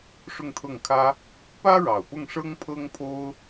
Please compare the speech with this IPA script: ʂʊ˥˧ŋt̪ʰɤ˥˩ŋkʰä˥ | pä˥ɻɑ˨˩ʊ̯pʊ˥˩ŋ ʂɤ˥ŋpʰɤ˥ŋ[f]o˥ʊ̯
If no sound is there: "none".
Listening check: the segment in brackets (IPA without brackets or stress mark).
pʰ